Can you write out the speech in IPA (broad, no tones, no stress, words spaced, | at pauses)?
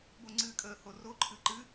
boŋ͡ǀɨːkʼəːho roǃʰɨ ǃɨ